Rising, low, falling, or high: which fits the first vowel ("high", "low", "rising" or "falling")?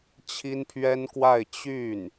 high